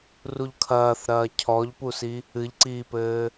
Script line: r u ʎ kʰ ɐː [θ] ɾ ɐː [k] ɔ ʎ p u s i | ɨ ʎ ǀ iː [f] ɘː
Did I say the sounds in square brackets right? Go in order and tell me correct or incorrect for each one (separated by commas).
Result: correct, incorrect, incorrect